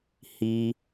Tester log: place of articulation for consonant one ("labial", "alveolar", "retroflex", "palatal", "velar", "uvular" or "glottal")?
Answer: glottal